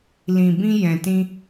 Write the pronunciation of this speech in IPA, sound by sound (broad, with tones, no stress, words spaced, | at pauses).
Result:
lĩ˨bĩ˧ jɛ̃˨tĩ˧